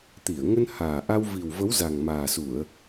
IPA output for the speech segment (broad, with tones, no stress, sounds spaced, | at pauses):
t̪ i˧˩ ə̯ ŋ ə˧ n h aː˨˩ ʔ a˧ w v i˨˩ w v ə˨˦ w z a˨˩ ŋ m aː˨˩ s u˧˩˨ ə̯